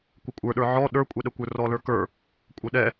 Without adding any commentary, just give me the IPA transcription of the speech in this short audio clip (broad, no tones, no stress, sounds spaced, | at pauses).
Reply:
kʷ ɪ kʷʼ ə˞ ɗ ə˞ ʕ ɔ ɗ ə˞ kʷʼ ɛ ɗ ə kʷ ə˞ r ɔ l ə˞ k ə˞ | kʷʼ ə ɗ ɛ